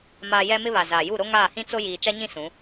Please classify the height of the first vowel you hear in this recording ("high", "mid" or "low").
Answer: low